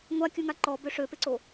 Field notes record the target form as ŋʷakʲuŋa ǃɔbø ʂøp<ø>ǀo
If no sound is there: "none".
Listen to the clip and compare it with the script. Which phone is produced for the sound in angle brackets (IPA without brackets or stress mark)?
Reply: e